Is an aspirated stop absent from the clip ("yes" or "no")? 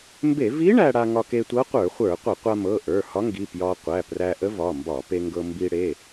yes